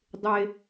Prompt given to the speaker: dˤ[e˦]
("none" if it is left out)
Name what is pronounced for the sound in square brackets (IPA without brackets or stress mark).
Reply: e˦